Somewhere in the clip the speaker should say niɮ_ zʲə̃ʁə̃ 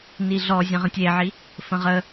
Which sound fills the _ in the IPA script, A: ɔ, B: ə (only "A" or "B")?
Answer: A